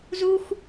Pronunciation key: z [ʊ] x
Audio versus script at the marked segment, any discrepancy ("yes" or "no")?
yes